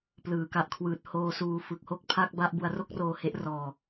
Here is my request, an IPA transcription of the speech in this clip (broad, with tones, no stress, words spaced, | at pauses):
plɯː˩˦ka˨˩ʔkʰwɯː˨˩t̚ hoː˧suː˧ fɯ˨˩k̚ho˥˩k̚pʰa˥˩k̚ba˥˩ʔ bu˧a̯ro˥˩k̚roː˧he˦˥ʔ rɔː˧